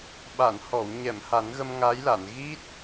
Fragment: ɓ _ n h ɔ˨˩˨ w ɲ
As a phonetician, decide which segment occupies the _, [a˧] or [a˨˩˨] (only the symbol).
a˨˩˨